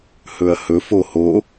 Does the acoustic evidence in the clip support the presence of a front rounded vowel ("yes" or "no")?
no